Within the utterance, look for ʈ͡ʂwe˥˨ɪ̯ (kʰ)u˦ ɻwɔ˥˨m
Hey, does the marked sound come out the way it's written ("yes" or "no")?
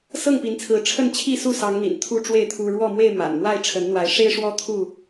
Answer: no